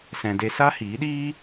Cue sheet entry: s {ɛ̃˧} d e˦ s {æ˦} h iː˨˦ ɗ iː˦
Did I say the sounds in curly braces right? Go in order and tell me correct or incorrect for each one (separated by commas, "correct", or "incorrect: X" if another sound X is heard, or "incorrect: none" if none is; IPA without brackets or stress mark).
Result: correct, incorrect: a˦